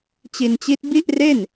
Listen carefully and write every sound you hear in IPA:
t͡ɕi˧nt͡ɕi˦˥t̚ bi˥˩ʔre˥˩n

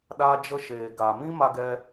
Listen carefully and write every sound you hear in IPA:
ɗa˧d͡ʒə˧ʃeː˨ɡa˨ mĩ˦ma˧ɡɛ˧

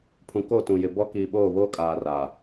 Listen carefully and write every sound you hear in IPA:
pʰũ˨ko˦˨tũ˨jɪ˨ bɔ˦kiː˨ɓoː˦˨βoː˦ kʼaː˨raː˨

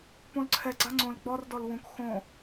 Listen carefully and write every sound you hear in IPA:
põlǀʰɛ ɡ͡ǀaŋ͡ǀõl ɡ͡bɔr dɔlwũk xõ

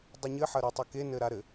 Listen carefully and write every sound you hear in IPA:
dˤɨɲɘħɐ ɾitˤɐkenɘ ɾaɾɘ

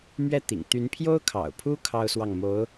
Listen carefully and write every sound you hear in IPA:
mɥɛ˥˩t̪ḭ˨˩ŋ t̪y˧˥npʰjo˥ʊ̯kʰɑ̰˨˩ʊ̯pʰu˥ kʰɑ˥ʊ̯swɑ˥˩ŋ mo˧˥ʊ̯

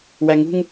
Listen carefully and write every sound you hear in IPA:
wæŋṳŋ

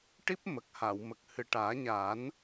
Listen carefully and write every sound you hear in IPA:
ʈi˦˥p̚mə˨˩k̚ha˨˩˨wmə˨˩k̚ hɨ˨˩ʈaː˨˩˦ɲaː˨˩˦n

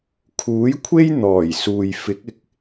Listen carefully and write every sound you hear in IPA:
kʰuː˨˥jkʷʰe˥j n̪ɔː˨˩jsuː˨j fɪ˨˥k̚ɪ˨˥k̚

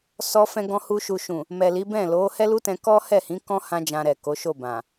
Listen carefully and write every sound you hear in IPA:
sɔ˧fɛ̃˧ɡɔ̃˧hu˧ ʃu˨ʃũ˨ | mɛ˨li˨˦bɛ̃˦˨ lo˨˦ hɛ˦lu˦tɛ̃˧ kɔ˦hɛ˦˨hĩ˨˦kɔ̃˦ hã˦d͡ʒã˧ɾɛ˨ ko˨˦ʃo˦˨ bã˨

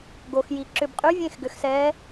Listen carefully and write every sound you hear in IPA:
ɡo˨xji˨ ǁʏ˨bqʼy˧˥vʲẽ˦˨x ɡʏ˨xsɛ˧˥

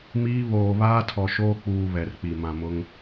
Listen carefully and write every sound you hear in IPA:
miː˦ βoː˨ βaː˦tʰɔ˨ʃoː˦ k͡puː˨ βɛ˨rk͡pi˨ mã˨mʊ˦ŋ

